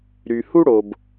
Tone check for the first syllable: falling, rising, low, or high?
low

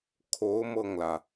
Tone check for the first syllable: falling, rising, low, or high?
rising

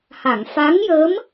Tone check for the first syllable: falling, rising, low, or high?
low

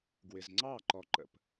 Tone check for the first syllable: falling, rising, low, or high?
low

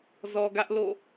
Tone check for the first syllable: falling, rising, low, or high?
low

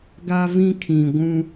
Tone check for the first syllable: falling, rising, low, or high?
high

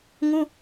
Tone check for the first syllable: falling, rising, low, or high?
high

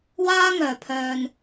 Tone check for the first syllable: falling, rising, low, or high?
high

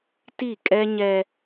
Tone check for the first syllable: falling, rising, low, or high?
falling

